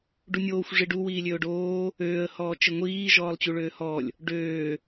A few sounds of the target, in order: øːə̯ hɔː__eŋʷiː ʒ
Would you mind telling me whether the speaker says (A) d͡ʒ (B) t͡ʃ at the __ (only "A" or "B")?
B